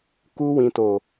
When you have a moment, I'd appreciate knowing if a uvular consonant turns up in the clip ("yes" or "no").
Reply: no